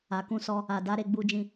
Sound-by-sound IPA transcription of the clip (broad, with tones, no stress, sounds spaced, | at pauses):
a˨ k ũ˧ s ɔ˧ | a˨ d a˧ ɾ e˧ ɡ͡b u˧ d͡ʒ ĩ˧